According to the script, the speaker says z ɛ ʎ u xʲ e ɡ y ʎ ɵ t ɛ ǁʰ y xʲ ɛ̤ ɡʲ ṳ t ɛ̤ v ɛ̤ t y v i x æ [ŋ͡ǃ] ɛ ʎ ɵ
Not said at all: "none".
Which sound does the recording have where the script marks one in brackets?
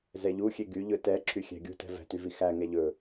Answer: ŋ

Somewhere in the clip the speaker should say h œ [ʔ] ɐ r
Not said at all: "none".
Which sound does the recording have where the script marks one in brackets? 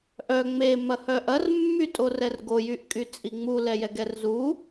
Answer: ʔ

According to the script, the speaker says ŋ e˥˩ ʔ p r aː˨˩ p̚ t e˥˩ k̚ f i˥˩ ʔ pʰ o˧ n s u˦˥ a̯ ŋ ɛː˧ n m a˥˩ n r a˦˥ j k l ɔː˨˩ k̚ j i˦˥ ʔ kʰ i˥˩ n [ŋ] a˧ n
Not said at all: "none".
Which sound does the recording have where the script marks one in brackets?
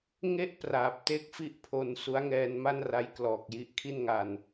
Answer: ŋ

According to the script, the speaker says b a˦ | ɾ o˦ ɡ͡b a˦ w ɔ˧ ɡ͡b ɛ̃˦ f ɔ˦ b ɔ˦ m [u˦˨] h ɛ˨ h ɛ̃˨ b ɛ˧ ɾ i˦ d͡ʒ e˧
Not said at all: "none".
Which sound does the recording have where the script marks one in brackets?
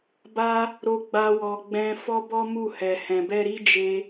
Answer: u˦˨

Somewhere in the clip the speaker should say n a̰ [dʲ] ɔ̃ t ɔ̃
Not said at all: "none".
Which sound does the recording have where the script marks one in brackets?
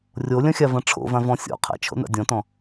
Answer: dʲ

